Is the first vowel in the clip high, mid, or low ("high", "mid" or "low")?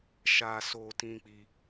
low